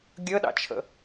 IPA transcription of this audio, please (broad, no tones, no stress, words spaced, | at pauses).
ɡʲəɗɑ̰t͡ʃʰə̰